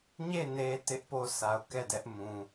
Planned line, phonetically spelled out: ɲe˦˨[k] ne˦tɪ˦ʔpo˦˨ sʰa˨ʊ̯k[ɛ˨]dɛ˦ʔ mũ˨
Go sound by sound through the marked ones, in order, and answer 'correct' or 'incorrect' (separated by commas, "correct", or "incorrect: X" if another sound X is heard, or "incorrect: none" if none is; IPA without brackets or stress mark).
incorrect: none, incorrect: ɛ˦˨